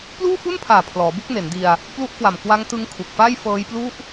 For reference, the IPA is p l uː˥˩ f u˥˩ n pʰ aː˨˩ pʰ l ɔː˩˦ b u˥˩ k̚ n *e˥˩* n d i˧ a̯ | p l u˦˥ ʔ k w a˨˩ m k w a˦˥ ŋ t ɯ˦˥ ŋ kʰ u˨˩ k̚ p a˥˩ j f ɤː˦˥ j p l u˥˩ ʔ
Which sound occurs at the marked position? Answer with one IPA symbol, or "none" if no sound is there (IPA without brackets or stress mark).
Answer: e˩˦